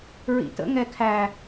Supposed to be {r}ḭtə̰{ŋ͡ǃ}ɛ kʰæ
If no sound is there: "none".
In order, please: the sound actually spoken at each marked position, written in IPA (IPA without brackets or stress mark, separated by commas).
ɹ, ŋ